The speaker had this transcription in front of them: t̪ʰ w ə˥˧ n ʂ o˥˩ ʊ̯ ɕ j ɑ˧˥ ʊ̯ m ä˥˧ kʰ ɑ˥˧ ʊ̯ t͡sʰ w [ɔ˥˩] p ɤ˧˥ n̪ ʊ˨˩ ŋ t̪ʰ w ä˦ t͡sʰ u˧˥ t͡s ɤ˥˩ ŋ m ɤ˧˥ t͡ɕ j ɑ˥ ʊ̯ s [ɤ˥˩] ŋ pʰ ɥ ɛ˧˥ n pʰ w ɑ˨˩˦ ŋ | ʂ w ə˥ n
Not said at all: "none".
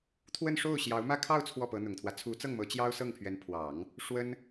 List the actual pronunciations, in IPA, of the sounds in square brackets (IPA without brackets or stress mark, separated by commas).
ɔ˥˩, ɤ˥˩